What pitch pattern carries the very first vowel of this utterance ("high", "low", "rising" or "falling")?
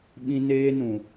high